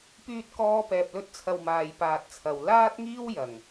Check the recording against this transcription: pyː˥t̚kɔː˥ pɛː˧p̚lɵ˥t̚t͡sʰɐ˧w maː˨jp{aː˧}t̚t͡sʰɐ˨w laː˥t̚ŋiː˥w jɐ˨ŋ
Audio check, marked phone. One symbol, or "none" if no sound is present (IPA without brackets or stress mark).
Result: aː˨